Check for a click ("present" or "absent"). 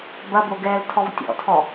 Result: absent